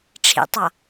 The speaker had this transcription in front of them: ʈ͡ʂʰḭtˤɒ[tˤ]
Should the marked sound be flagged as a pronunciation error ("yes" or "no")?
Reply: yes